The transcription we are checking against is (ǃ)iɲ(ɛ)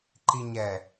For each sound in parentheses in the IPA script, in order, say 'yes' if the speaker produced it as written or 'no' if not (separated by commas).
yes, yes